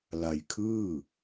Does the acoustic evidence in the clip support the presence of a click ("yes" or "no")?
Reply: no